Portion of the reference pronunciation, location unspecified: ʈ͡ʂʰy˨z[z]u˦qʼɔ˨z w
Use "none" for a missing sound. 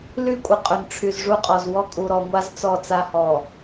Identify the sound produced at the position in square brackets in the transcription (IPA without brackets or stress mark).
ʐ